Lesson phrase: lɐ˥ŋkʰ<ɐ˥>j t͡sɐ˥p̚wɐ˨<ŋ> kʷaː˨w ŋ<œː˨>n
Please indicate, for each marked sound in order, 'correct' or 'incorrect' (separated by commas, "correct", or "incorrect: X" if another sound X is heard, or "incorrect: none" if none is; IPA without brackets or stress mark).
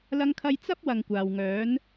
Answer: correct, correct, incorrect: œː˨˥